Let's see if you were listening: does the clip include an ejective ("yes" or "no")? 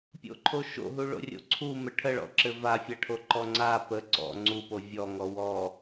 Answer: no